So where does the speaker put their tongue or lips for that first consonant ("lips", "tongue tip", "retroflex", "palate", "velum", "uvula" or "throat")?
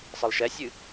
tongue tip